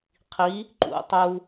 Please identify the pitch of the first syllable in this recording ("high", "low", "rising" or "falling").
rising